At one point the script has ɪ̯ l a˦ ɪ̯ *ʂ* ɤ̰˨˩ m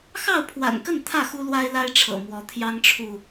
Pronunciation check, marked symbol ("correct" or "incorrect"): incorrect